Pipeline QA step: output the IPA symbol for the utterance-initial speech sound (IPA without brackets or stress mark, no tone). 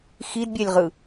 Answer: x